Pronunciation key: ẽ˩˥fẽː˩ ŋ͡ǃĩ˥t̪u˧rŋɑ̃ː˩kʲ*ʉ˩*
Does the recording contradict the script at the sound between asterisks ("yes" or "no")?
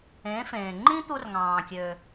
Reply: yes